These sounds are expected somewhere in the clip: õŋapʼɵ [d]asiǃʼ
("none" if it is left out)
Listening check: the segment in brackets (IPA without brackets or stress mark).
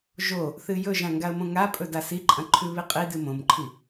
d